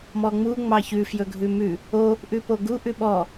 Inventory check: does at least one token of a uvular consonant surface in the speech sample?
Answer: no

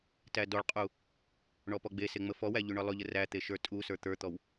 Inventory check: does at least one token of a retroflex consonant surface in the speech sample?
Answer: yes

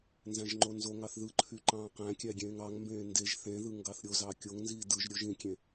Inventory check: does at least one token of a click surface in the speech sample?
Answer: yes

